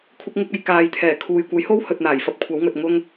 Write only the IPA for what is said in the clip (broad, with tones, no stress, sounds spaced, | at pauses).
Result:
kʷʰ ɪ˧ k̚ ŋ ɪ˧ k̚ ɐ˨˧ j k aː˨ j t̪ʰ ɛː˨˩ kʰ uː˨ j kʷ ɐ˨˥ j h o˥ w h ɵ˨ t̚ n̪ aː˨˩ j f ɐ˧ p̚ kʷʰ ɐ˨˥ w ŋ ɵ˨ t̚ ŋ ʊ˧ ŋ